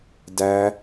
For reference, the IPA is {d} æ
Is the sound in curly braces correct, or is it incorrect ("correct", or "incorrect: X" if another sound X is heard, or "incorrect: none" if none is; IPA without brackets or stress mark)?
correct